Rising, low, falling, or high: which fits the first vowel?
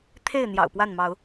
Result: falling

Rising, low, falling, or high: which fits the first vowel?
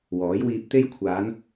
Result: rising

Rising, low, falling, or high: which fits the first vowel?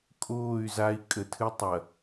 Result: falling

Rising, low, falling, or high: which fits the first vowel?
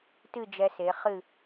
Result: falling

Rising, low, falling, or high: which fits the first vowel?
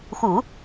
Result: low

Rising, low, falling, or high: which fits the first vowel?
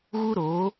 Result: high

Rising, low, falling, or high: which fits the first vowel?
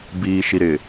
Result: low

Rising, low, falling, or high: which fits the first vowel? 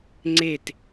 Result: falling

